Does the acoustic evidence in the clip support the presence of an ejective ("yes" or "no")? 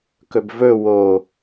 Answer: no